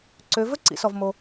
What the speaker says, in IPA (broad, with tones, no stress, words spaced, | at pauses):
ǀø˩˧ vɵ˥ǀḭ˩˧sɔ˩v mo˩